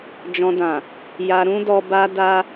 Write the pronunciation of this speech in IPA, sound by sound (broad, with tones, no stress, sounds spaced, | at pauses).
d͡ʒ ɔ̃˧ d ã˨ | j a˧ ɾ ũ˦ d ɔ˧ b a˧ d a˧